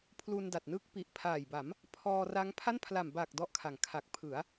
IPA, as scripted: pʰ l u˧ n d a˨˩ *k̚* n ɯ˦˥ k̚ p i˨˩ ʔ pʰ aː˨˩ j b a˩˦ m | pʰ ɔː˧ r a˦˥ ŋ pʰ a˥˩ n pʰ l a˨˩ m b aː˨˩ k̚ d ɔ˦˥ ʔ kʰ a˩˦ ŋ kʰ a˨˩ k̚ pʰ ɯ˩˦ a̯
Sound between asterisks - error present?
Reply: yes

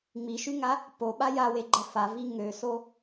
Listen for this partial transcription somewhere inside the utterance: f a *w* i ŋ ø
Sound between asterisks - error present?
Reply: yes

